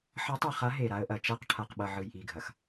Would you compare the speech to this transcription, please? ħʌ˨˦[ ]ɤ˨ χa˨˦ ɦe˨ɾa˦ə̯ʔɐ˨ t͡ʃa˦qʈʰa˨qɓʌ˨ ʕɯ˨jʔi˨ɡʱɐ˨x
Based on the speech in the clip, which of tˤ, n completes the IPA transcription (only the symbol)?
tˤ